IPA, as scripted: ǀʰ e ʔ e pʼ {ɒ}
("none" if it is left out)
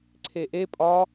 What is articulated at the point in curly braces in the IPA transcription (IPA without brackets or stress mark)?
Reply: ɒ